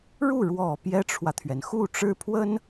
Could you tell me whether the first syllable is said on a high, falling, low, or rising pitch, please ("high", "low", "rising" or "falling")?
falling